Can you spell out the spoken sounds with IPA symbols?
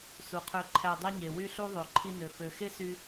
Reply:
s u˨ qʰ ø˧ ǃʰ æ˧ dˤ e˦ ɲ e˨ w y˦ ɬ u˦ ðˤ ø˨ ǃʰ i˧ n ø˨ f ø˨ x e˦ s y˦

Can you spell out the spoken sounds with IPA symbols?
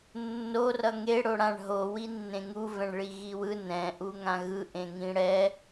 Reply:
nː o r ʌ ŋ e ɽ o ɽ ã ɳ ɦ o w i nː ẽ ŋ u v ɛ̃ ɳ ɭ i ɣ i w ɯ n ɛ̃ ʔ u ŋ ã ɣ ɯ ʔ ẽ ŋ ĩ ɽ ɛ

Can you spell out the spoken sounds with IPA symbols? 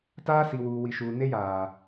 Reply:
t aː˦ s i˨ w uː˨ w i˨ ʃ uː˨ n e˦ j aː˨

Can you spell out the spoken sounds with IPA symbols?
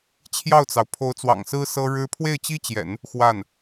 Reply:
t͡ɕʰ j ɑ˥˩ ʊ̯ t͡s ɑ˩ ʊ̯ pʰ o˧˥ ʊ̯ t͡s w ɑ̰˨˩ ŋ s ɹ̩˥ s ɤ˥ ɻ ɻ̩˥ pʰ w e˥˩ ɪ̯ t͡ɕ i˥ t͡ɕ j ɛ̰˨˩˦ n | x w a˥˩ n

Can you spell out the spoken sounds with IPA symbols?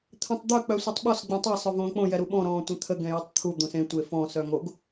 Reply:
t̪ʰ ɛ̃ tˤ d̪ œ k͡p œ sʷ œ tˤ ɓ ɔ s ɡ͡b ɛ̃ tˤ e sˤ œ v õː k͡p õ j ɛ ɾ u ɓ ɔ̃ ɾ ɔ̃ː tʷ ɛ̃ t̪ʰ ə ɡ ɛ̃ j o tˤ t̪ʰ u d̪ õ s ẽ tʷ e f ɔ̃ s œ ŋ o ɡ

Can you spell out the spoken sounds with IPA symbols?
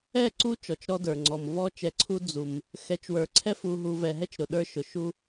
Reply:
ɛ˦˨ ǀ u˦ t͡ʃ ɔ˨ t͡ʃ ɾ ɔ˦ d ə˞˨ ŋ͡ǀ ɔ˨ m v ɔ˦ t͡ʃ ɛ˨ ǀʰ u˦ d͡z u˨ m | x ɛ˨ t͡ʃ w ə˞˨ ǀʰ ɛ˦ f u˨ ɦ u˨ v ɛ˨ ɦ ɛ˦ t͡ʃ ɾ ʊ˨ ɗ ə˞˦ ʃ ʊ˨ ʃ u˦

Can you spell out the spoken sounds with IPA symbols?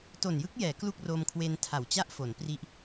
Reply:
t o˨˩ n j ɯ˦˥ k̚ j ɛː˩˦ k l u˥˩ k̚ r o˧ m kʰ w e˧ n tʰ a˨˩ w t͡ɕ a˥˩ ʔ f o˩˦ n p r i˦˥ ʔ

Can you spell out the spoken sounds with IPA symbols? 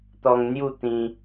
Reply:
t̪ ɔ˧ ŋ n̪ j u˥˧ t̪ ĩ˧

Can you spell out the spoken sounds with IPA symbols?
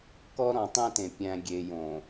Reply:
k ɔ˦ ɾ ɔ̃˨ tˤ ẽ˦ t ẽ˨ pʲ æ̃˨ ɡʲ e˨ j õ˨

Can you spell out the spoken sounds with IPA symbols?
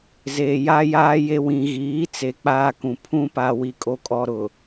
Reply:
z eː˨ j a˦ j aː˦ j e˦ w ĩ˨ ɣ iː˨˦ t͡s e˨ k͡p aː˦ k ũ˨ pʰ ũ˦ p a˨ w i˨ kʼ o˨ kʼ ɔ˨ ɾ ʊ˨

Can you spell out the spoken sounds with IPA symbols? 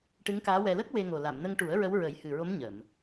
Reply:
ʈ ɨ˧˥ ŋ k aː˧˥ w ɛ˧ l ə˦˥ k̚ w e˧ ŋ o˨˩ l a˨˩˨ m n ə˧ ŋ ʈ u˨˩˦ ə̯ ɹ ə˧˥ w ɹ ə˨˩˦ j h ɨ˨˩ ɹ o˧˥ m ɲ ə˨˩˨ m

